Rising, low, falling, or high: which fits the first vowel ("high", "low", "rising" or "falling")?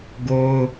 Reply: high